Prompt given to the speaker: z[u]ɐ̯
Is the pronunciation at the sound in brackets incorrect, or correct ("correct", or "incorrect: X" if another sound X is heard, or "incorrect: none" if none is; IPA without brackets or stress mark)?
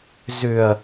incorrect: ʏ